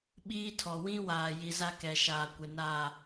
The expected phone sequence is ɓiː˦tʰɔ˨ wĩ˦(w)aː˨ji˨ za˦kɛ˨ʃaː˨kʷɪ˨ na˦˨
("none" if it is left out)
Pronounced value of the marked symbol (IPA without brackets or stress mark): w